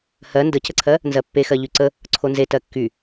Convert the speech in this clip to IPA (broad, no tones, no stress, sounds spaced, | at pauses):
h ɜ n d ə c ə ǀʰ ɜ | n z ɜ pː e x ɜ ʎ y ǀ ə | ǀʰ o n z e t ɜ kː y